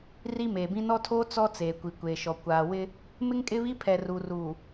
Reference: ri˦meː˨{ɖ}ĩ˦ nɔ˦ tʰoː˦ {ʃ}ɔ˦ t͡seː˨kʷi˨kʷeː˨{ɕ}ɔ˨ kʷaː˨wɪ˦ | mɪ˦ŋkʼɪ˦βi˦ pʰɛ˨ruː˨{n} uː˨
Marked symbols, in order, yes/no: no, no, no, no

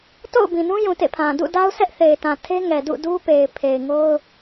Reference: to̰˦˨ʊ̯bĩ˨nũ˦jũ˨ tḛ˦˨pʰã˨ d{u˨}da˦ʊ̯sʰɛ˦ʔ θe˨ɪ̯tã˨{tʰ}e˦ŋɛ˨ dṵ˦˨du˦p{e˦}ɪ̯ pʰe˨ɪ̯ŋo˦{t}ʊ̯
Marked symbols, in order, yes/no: no, yes, no, no

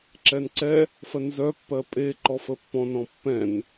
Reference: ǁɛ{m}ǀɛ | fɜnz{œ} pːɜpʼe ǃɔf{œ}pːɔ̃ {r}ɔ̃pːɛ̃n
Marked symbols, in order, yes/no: no, yes, no, no

